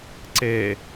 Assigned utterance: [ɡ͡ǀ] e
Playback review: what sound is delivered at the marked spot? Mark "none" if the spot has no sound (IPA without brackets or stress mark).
ǀ